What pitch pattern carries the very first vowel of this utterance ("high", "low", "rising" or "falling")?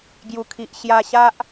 low